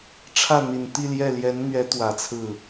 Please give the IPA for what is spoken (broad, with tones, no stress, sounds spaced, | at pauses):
ʈ͡ʂʰ ä˥˩ n̪ i˨˩ n t̪ i˥˧ l j ɛ˥˩ l j ɛ˧˥ n n̪ ɥ ɛ˧˥ t̪ w ä˨˩ t͡sʰ ɹ̩˥˩